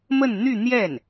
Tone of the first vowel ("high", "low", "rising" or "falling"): falling